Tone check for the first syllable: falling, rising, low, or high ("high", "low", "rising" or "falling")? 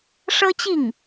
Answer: high